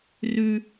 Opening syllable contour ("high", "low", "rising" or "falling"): high